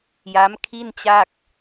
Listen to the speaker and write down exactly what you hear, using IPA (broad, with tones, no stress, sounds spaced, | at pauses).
j a˦˥ m kʰ i˥˩ n t͡ɕ a˥˩ k̚